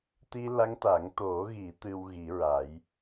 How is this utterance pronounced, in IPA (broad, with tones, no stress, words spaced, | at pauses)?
t̪i˧la˧˥ŋt̪a˨˩˦ŋ t̪o˨˩˦ɣi˨˩˦ t̪ɨ˧w ɣi˨˩˦ɹa˨˩˦j